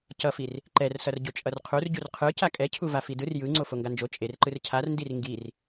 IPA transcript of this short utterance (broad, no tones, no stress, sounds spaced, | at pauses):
c ʌ f i r | ǃ ɛ r s ʌ r ɟ o t͡ʃʼ ʌ r qʰ u r ɟ u r qʰ ɯ c a kʼ ɛ cʰ u v a f i d ɯ r j ɯ ŋ͡ǀ o f o ŋ ɡ a n d͡ʒ o t͡ʃʼ e r ǃ ɯ r cʰ a r n d i r ŋ ɡ i r